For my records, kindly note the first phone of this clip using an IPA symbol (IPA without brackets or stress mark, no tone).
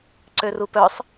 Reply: ǀ